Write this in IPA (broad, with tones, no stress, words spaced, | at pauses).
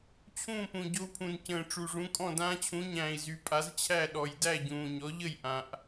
t͡ɕʰũː˥˩pũ˨˩ɟo˧u̯pʰũ˨˩n cə̃ː˨˩ʈ͡ʂu˨˩ʐũ˩˥kʼɔ̃˥˩ dãː˧t͡ɕʰũ˩˥ɲæ̃ː˨˩i̯zy˨˩ pʼa˩˥zt͡ɕʰæ˥˩ɗɔ˨˩j dæ˥˩ɟũː˨˩ɲɔ˩˥ʎə˥˩j ʔã˨˩ʔ